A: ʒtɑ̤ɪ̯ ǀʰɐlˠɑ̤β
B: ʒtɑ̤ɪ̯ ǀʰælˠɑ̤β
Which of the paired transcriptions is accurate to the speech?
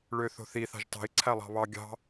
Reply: B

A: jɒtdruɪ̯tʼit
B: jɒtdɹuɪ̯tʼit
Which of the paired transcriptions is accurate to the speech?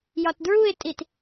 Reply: B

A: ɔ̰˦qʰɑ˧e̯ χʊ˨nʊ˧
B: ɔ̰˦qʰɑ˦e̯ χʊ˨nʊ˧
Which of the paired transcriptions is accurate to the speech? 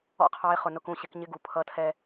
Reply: A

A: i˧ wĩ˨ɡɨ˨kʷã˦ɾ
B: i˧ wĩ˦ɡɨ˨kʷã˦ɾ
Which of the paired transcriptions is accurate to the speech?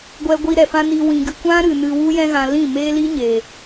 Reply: A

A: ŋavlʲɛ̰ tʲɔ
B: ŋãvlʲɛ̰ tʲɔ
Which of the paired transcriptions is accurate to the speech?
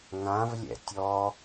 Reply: B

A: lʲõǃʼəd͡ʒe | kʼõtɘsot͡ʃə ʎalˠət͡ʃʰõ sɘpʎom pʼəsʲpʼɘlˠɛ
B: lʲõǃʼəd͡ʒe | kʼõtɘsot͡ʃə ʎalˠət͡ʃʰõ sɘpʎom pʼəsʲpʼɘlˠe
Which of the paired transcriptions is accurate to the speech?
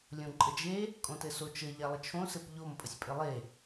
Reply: B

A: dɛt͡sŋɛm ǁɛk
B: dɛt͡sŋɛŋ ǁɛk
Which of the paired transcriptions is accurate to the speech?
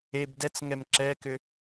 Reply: A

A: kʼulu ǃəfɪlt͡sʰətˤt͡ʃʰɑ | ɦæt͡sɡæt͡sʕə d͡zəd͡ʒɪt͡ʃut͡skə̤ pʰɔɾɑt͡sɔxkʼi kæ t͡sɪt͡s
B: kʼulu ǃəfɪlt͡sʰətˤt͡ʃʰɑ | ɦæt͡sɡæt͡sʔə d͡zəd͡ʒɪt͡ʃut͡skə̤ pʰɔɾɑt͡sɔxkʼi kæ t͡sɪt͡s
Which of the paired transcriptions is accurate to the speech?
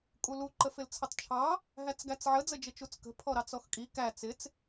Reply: A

